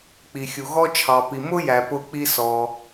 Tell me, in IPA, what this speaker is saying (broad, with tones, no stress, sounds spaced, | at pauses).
k͡p i˩ xʲ u˩ ɣ ɔ˧ t͡ʃʰ ɑ˩ p i˩ m ʊ˥ j æ˩ p ʊ˧ k͡p i˧ s ɔ˩